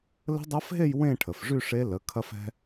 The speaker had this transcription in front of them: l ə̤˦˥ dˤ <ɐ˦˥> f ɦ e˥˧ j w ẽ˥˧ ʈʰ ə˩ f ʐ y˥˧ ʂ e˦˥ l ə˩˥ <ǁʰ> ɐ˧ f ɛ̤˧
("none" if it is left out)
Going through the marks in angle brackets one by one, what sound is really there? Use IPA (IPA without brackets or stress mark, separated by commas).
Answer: ɐ˦˥, kʰ